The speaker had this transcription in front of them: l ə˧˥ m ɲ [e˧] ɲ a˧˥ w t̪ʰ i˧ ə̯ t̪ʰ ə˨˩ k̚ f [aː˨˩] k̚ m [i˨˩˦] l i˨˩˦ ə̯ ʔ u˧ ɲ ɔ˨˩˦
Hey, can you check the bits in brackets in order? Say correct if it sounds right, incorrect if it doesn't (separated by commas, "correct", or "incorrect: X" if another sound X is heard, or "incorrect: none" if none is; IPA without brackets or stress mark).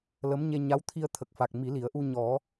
correct, incorrect: a˨˩, correct